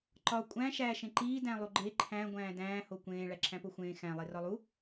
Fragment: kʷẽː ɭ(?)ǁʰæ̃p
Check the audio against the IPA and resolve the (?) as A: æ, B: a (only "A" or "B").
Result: A